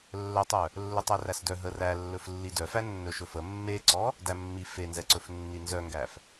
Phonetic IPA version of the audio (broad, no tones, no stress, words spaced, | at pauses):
lːœtˤœ | lːɵtˤæræsdœ ɦərælːɵf lːidœfæ nːɵʃɵfə mːeǀɔ | dæmːi fenzɛǀɵf nːinzœŋɡæf